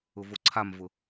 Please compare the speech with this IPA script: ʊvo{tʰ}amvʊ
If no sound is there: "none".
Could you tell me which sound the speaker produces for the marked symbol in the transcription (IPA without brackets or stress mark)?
ǀʰ